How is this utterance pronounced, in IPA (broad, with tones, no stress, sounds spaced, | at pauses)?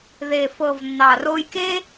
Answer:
ð e˨ f ɤ˨ v nː ɑ˨ r o˧ j k e˦